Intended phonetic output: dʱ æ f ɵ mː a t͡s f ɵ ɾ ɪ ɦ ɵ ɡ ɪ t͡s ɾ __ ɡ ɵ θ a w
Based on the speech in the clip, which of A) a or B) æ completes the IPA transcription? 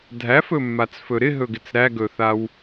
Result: B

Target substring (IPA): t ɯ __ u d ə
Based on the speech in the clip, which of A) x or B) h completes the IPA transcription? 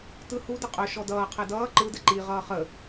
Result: B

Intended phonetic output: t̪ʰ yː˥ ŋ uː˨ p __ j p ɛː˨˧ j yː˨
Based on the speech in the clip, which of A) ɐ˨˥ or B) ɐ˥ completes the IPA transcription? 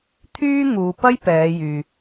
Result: B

